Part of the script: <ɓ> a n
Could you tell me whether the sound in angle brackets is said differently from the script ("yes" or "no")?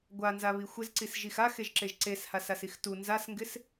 yes